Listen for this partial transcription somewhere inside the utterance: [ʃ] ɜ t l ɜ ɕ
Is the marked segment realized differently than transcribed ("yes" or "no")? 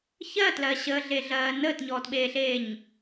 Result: yes